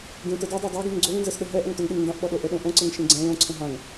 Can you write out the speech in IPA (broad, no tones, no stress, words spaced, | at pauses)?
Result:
ɡẽtə dɛdˤa dˤaɡẽŋ ɡ͡ǀoŋnzɛsɗə ɦɛʔœŋtœŋɗeŋ ndãʔɓɔɗo ʔəɗõ ʔõǀəŋʃẽ ɡ͡ǀɛ̃ lõǀʰə̃ ɦãŋ